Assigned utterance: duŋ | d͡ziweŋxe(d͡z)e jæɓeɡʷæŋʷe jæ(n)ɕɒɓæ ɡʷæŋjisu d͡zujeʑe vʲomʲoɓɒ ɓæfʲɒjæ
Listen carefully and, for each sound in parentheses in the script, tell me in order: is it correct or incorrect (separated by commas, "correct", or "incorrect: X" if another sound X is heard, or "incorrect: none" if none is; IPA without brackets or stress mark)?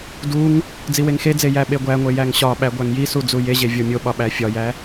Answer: correct, incorrect: ŋ